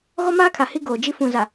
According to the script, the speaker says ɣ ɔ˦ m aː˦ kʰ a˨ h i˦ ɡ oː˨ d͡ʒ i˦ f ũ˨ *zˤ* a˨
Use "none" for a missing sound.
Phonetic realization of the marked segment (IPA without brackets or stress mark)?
z